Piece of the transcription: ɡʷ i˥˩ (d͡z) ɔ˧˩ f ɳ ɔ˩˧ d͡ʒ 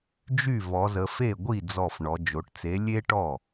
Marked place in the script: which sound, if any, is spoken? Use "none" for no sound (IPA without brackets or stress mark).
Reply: d͡z